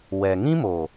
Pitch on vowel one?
low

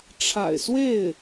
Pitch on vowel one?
low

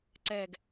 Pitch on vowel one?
low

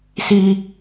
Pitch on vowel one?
high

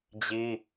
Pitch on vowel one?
high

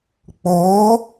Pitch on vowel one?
rising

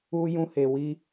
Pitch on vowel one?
high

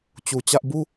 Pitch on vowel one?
low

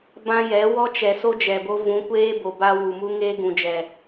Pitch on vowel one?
high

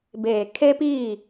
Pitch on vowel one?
low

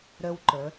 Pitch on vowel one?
high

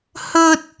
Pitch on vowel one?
high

